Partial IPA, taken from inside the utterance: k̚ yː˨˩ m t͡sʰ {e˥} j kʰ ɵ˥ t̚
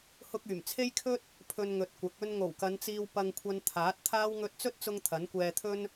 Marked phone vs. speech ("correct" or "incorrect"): correct